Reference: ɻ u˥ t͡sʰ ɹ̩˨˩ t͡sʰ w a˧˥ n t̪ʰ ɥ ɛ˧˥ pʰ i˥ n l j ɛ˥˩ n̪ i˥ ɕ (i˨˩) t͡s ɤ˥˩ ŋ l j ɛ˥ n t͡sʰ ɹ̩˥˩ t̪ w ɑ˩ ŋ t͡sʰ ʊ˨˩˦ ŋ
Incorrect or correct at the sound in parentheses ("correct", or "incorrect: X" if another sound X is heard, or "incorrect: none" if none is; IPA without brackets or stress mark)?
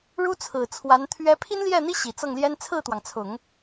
correct